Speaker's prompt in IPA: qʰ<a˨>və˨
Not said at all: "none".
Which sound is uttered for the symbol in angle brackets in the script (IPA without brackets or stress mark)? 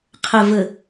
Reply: ə˨